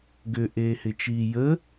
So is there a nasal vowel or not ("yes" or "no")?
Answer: no